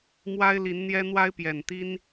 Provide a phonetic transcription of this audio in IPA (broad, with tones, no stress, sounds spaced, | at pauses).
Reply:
m w a˦ ɪ̯ l i˨˦ n n̪ j ɛ˦ n̪ w a˦ ɪ̯ p j ɛ˨˩ n t̪ i˦ n